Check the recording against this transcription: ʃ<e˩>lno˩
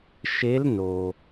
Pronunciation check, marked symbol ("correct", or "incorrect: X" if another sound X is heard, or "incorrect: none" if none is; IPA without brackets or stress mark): incorrect: e˧˥